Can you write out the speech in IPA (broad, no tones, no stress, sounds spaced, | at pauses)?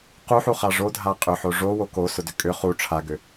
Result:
q u ħ u χ a ʐ o dʱ a qʼ ʏ ħ o ʐ o w o k o s ʊ d ʏ kʼ ʏ χ u ʈ͡ʂʰ a ɡ ʏ